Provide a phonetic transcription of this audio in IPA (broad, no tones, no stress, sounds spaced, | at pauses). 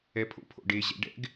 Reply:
ɛ pʰ o̰ pʰ o̰ ɖ e ʑ ɛ̰ ɖ ɛ̰ ɡ